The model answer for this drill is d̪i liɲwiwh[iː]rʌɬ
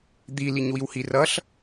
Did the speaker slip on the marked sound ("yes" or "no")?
yes